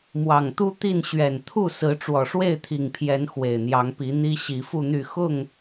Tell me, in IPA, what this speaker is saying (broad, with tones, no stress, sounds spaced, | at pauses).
m w ɑ˨˩ ŋ t̪ u˦ t̪ i˥˨ n ɕ ɥ ɛ˨˩ n t̪ʰ u˥˨ s ɹ̩˨˦ ʈ͡ʂ w ɔ˨˩ ʂ w e˥˨ ɪ̯ t̪ʰ i˨˩ ŋ pʰ j ɛ˨˦ n x w e˨˩ ɪ̯ n̪ j ɑ˨˦ ŋ p i˨˦ n̪ i˦ ɕ i˨˦ f u˥˨ n̪ y˥˨ x ʊ˥˨ ŋ